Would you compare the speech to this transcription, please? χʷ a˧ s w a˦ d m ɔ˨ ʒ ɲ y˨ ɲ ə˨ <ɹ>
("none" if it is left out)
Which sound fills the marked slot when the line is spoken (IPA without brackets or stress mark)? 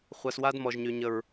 ɹ